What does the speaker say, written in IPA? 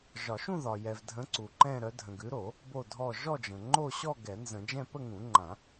ʒ ɒ˨˩˦ ʃ ũ˥˧ ð ɒ˨ j ɛ˨ v dʱ ə̃˨˦ ǀ u˨ ǃ ɛ̃˥˧ ɾ œ˨˦ dʱ ə̃˨ ɡ ʉ˨˦ ɾ o˨˩˦ | b o˥˧ dʱ ɔ˥˧ ʒ ɔ˥˧ d͡ʒ ə̃˨ ŋ͡ǃ o˥˧ ɕ ɔ˥˧ ɡ ɛ˨˩˦ n z ə̃˨˩˦ d͡ʒ ɛ̃˥˧ p ə˥˧ ŋ ũ˨˩˦ ŋ͡ǃ ã˨˩˦

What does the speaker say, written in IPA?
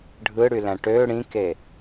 ɖʱ ɯ ɽ y l æ̃ ʈ ø ɽ ĩ k e

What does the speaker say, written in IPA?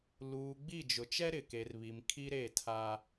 l uː˨ ɡ͡b i˦˨ d͡ʒ ʊ˨ t͡ʃ ɛ˦ ɾ ɪ˨ k e˨ r β i˨ m kʰ i˦ ɾ e˦˨ tʰ a˦

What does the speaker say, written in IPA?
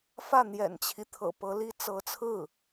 f ä˥˩ n̪ j ɛ̰˨˩ n t͡ɕʰ i˦ t̪ʰ ɤ̰˨˩ p ɤ˧˥ l i˥ t͡s ɤ˧˥ t͡sʰ ɹ̩˥˩

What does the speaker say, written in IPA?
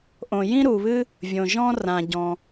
ʔ õ˩ j ĩ˥ ɾ u˩ β ɨ˥ | vʲ õ˩ ʒ ɔ̃˥ r ã˩ ɟ ɔ̃˩

